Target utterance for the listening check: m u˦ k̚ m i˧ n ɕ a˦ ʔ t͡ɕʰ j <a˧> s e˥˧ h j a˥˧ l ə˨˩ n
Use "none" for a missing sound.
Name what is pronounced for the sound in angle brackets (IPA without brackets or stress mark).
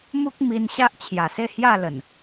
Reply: a˨˩